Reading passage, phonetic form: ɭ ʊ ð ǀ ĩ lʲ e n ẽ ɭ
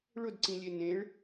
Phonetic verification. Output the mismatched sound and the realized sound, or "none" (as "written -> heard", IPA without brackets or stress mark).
ð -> d